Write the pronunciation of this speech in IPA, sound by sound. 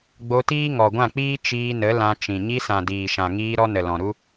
ɡ͡bo˧tiː˦ ŋɔ˨ɡʷã˦˨k͡piː˦ t͡ʃiː˧nə˨˦ lã˧t͡ʃĩ˨ ɲi˧sã˨diː˨ʃã˨ ŋiː˧ ɾɔ˧nə˨lɔ̃˨ɾu˦

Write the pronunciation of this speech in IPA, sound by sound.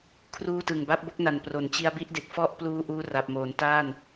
kʰruː˥˩tɯ˨˩ŋ ba˦˥p̚bo˥˩k̚na˨˩n pro˩˦nt͡ɕi˧a̯bi˥˩ʔde˨˩k̚ fɔ˥˩ʔpluː˧ ʔuː˧ra˨˩p̚moː˩˦n ta˥˩n

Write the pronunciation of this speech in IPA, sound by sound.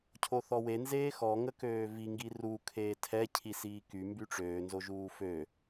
cʰoθɔwe nzeːxɔ ŋəkøːvi ŋɡiru kʰeːtʰɛ cʰisiːky mbyʈ͡ʂøː nzoʒuːfø

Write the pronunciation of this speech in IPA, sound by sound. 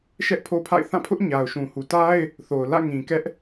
ʃɛ˦ʔpʰo˦pʰa̰˦˨ɪ̯ θã˦˨pʰʊ˦ʔ ɲa˨ʊ̯ʃũ˨ hu˨ta˦ɪ̯ | θo˨ʊ̯ lä̰˦˨ŋĩ˨ kɛ˦ʔ

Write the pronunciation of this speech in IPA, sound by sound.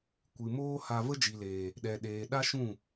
kʷɨ˨moː˦ ha˧ və˦d͡ʒi˨leː˨ | ɗɛ˨ɗeː˨ ɗa˦ʃũ˦˨

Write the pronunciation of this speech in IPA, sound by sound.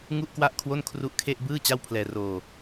ŋu˥˩ʔkwa˥˩ʔkʰwo˥˩n kʰru˦˥ʔkʰe˥˩ʔ bɯː˥˩ t͡ɕa˥˩wpʰlɛː˧roː˧

